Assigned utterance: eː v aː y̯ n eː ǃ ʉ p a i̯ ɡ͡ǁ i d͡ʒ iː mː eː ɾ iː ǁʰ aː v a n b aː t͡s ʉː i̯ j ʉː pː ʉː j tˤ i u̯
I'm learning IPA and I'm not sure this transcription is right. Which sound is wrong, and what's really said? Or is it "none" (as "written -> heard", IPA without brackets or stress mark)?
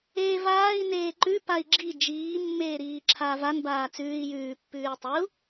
y̯ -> i̯